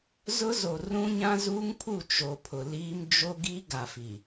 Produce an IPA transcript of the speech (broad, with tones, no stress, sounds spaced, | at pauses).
z ʊ˦ z o˨ r ũ˦ ɲ ã˦ z uː˦ ŋ pʰ u˦˨ t͡ʃ o˨ pʰ ʊ˨ l iː˦ m d͡ʒ o˦ ɡ i˦ ɡ a˨ f i˨